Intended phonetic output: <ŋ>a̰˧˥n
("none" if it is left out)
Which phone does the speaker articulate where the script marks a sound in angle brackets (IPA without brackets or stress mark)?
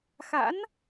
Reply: x